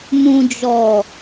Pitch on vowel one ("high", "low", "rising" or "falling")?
low